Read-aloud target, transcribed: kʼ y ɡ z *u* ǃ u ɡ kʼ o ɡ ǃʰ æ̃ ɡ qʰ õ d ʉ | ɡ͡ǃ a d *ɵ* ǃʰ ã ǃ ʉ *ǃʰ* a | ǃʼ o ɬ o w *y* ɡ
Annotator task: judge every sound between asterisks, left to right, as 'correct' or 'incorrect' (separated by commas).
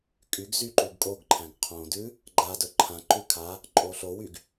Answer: incorrect, correct, incorrect, correct